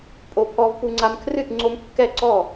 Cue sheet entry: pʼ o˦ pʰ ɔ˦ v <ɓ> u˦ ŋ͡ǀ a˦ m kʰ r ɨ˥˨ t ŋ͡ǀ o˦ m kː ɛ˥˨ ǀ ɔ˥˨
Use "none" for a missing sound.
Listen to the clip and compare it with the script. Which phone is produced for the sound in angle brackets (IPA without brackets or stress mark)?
p